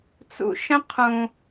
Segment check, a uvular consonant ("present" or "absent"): present